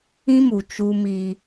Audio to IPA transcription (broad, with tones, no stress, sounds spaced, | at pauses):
ĩ˦ m u˨ t͡ʃ u˦ m i˦